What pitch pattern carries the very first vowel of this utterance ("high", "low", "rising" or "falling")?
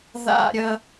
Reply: high